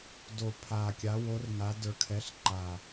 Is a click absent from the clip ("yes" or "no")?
no